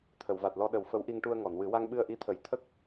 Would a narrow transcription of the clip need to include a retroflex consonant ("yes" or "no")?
yes